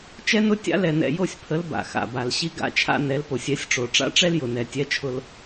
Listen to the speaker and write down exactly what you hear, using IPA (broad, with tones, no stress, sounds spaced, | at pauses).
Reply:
t͡ʃ ɛ˦ n ʊ˦ tʲ a̰˦ l ɛ˨ n ɛ̰˨ j o˦˨ sʲ pʰ ə˨˦ l b a̰˨ x a̰˨ b a˨ l ɕ i˦ ɡ a̰˦ t͡ʃʰ a̰˦ n ɛ˨˦ l p o˨ sʲ ɛ˨˦ sʲ ʈ͡ʂ o˨ ʈ͡ʂ a̰˦ ʈ͡ʂ ɛ˦ l j ʊ˨ n ɛ˨ tʲ ɛ˦ t͡ʃʰ ʊ˦ l